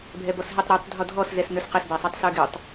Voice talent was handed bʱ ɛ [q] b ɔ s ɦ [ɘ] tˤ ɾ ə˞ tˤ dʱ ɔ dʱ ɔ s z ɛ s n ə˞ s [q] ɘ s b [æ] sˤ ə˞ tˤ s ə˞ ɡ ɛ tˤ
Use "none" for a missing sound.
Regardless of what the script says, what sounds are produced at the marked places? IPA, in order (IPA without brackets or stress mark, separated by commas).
none, ɛ, q, æ